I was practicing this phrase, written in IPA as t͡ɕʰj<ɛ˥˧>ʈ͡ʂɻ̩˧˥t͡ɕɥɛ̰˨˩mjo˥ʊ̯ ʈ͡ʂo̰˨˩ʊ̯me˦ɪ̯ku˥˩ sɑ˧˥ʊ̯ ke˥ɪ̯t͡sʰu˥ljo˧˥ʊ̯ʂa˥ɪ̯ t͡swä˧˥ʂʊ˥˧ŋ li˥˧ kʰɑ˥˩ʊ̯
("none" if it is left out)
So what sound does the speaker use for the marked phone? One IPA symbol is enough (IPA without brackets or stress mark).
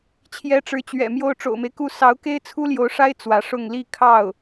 ɛ˧˥